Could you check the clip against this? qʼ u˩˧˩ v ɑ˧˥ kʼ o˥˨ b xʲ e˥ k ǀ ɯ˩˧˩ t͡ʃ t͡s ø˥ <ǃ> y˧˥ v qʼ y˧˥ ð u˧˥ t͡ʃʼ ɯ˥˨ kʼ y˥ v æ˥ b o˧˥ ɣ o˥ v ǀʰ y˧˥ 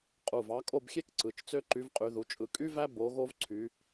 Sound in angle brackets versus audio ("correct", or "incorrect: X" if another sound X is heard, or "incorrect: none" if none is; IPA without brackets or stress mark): correct